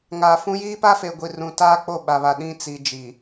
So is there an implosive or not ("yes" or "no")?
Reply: yes